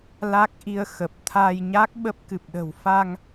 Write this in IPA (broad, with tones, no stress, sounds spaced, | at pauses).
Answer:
l a˦˥ k̚ ʔ i˧ ə̯ x ə˨˩ p̚ t̪ʰ a˧ j ɲ a˦˥ k̚ ɓ ə˦˥ p̚ k ɨ˨˩ p̚ ɗ ə̤˨˩ w f a˧ ŋ